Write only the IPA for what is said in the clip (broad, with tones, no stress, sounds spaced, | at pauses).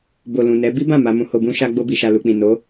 b o˨ l ũ˨ n ɛ˨˦ b i˦ b ã˦˨ m a˧ m ũ˧ h o˧ b ũ˦ ʃ a˧ ɡ͡b o˧ b i˨ ʃ a˨ l u˨ k͡p ĩ˨ n o˨˦